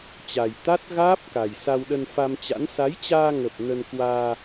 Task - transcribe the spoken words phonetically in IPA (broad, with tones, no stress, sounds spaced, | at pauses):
t͡ɕ a˨˩ j t̪ a˦˥ t̚ ɣ aː˦˥ p̚ k a˨˩ j s a˧ w ɗ ə˧ n f a˧ m t͡ɕ a̰˧˥ n s a˨˦ j t͡ɕ aː˧ ŋ ə˨˩ p̚ n ə˧ n k w aː˧